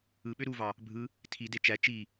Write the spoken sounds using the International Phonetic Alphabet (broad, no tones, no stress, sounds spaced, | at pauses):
ɯ ɓ ø ɾ u v ɑ | bʱ ɯ | tʰ i d e t͡ʃ æ t͡ʃ i